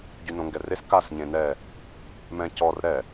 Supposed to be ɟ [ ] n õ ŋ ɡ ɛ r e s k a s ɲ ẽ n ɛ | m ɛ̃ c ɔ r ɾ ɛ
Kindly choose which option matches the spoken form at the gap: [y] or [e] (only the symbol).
y